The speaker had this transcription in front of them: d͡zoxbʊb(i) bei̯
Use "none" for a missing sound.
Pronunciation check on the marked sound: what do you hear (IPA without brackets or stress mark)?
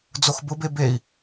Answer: e